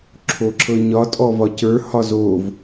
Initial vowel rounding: rounded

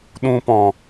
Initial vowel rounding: rounded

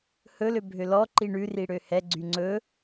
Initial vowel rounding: rounded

